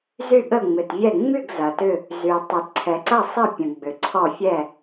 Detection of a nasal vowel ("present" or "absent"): present